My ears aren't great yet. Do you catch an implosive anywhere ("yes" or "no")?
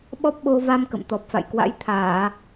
yes